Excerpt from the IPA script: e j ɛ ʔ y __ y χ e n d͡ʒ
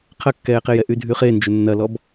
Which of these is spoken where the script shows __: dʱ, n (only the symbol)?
dʱ